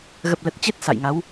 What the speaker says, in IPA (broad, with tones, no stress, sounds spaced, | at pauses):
ɣ ə˨˩ p̚ l ə˨˩ t̚ t͡ɕ e˦˥ t̚ s a̰˧˨ j ŋ a˨˦ w